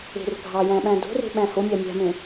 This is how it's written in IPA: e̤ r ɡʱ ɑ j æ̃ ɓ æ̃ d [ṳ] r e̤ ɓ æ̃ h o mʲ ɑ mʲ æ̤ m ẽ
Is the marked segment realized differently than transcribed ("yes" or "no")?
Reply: yes